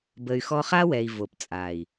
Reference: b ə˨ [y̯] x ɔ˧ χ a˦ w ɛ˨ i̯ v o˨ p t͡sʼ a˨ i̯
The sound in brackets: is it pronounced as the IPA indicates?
yes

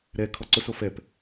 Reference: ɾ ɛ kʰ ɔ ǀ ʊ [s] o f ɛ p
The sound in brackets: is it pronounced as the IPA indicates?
yes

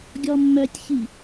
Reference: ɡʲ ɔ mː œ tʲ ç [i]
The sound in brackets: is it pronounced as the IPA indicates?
yes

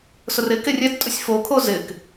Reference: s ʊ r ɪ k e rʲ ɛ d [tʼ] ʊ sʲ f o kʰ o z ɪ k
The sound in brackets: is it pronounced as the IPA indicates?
yes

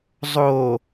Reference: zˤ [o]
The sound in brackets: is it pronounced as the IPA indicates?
yes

